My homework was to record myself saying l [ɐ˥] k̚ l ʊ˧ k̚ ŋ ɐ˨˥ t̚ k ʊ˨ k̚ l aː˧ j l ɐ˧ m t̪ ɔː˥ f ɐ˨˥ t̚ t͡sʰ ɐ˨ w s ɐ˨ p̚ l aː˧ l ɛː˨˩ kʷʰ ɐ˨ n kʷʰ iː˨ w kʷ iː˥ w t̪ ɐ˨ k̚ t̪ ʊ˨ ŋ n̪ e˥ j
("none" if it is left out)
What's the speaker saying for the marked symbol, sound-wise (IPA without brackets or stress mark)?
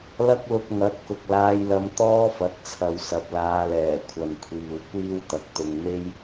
ɐ˥